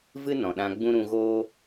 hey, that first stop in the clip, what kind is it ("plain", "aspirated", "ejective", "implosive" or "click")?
implosive